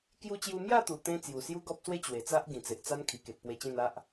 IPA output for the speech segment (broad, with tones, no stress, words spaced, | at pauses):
kju˧t͡ɕju˧mja˥˧t̪u˨˩ t̪ẽ˦ t͡sju˨˩sju˦ɡɔ˦p̚swe˦ t͡ɕwe˨˩t͡sa˦ʔ ɡĩ˨˩t͡se˨ʔt͡sa˦n kʰi˨˩ke˨t̚pwe˧t͡ɕẽ˥˧n a˦ʔ